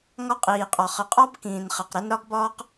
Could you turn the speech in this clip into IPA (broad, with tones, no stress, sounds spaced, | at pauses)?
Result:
ŋ ɒ˦ qʼ iː˨ qʼ ɒ˨ χ ə˨ qʼ ɒ˦ b k ĩː˨ n χ ɛ˨ q ɾ ə˦ n ɾ ɒ˦ ɡ b ɒː˦ q